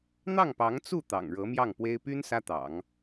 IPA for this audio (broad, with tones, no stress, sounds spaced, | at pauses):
n̪ ɑ˥˩ ŋ p ɑ˧˥ ŋ t͡s u˥˩ t̪ ɑ̰˨˩ ŋ ɻ ɤ˧˥ m j ɑ˥˩ ŋ p w e˥ ɪ̯ p y˥ n s ä˥ t̪ ɑ̰˨˩˦ ŋ